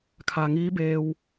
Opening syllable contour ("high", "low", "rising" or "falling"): low